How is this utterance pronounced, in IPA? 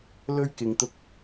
lɵ˥ɥkɪ˧ŋ t̪ʊ˥k̚

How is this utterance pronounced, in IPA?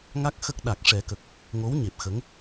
ŋa˦˥k̚ xə˦˥k̚ ɗa˨˩k̚ ʂɛ˨˩˦kə˨˩k̚ | ŋo˧˥w ɲe˨˩p̚ xə˧˥ŋ

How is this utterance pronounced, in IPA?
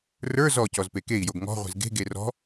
rə˞ zɔcɔz pekei̯joɡ ŋɔ̤ʁʷe̤z ɡe̤ɡe rɔ̤

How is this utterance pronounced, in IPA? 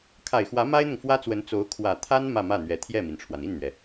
kʰa˨˩ɪ̯xwä˧˥ ma˥ɪ̯n̪ʊ˨ŋfwä˥t͡swə˧˥n t͡so˧˥ʊ̯ kʰwä˨˩t̪ʰa˥n mä˥˧mä˥˩n̪ɥɛ˧˥ t̪ʰjɛ˥˩mi˩nʈ͡ʂʰwa˩n i˥˩nn̪ɥɛ˩

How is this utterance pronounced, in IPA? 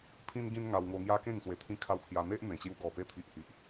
pʰĩ˦nɡĩ˦n ŋa˧wŋo˧ŋja˦kẽ˥˧ŋ swe˨˩t̪ʰĩ˧kʰa˧w kʰja˧n̪e˦ʔ n̪ẽ˨˩t͡ɕju˧ ɡɔ˨˩pe˧t̪ʰi˨ʔhi˨ʔ

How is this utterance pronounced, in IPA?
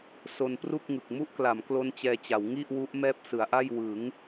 so˧npru˥˩k̚ŋɯ˨˩k̚ mu˦˥ʔkla˩˦m klo˦˥nt͡ɕɛː˧t͡ɕa˩˦w ŋi˥˩ʔ wu˦˥ʔ mɛː˥˩p̚sɯ˩˦a̯ʔa˥˩j wɯ˩˦ŋ

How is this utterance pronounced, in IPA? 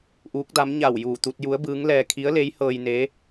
ʔuː˧˥k̚da˧˥m ɲa˧˩wjuː˧˩ t̪u˧t̚ ju˧˥ə̯bɯː˧˥ŋlɛː˧ kʰi˧˥ə̯le˧˥jhɤː˧j ne˧˥

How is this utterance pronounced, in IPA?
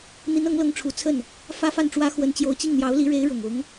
n̪i˧˥nɤ˧˥ŋlɤ˧˥ŋʈ͡ʂʰu˨˩ t͡sʰə˥˩n | fä˥fa˥˩nʈ͡ʂwä˥ xwə˧˥nt͡ɕjo˧˥ʊ̯t͡ɕi˥˩ŋ n̪jɑ˧˥ʊ̯li˧˥ɻe˧˥ɪ̯ ɻʊ˨˩ŋʊ˧˥ŋ

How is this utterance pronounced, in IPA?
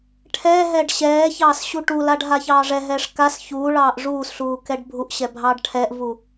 ʈʰɛːɦɛːɖ ɕɛːçɑːs ɕuʈulaɖ ɦaçɑːʐɛɦɛːʂ kas çuːɭɑːʔ ʐuːsɬuː kɛɖbʱuʔɕɛ bʱɑːɖʈʰɛʔvu

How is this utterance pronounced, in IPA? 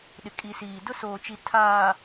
ɗɪ˨kʼi˨siː˨ dʊ˦soː˨t͡ʃi˨ tʰaː˨

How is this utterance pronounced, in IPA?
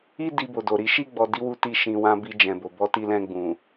i˦ di˧bo˨do˨ɾi˨˦ ʃi˦˨ɡ͡bɔ˨di˨˦wu˧ ti˧ʃĩ˨wã˧ bi˧d͡ʒɛ̃˨bo˨ bɔ˧ti˧lɛ̃˧ ɡ͡bũ˨

